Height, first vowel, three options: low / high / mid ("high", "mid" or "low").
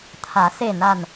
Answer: low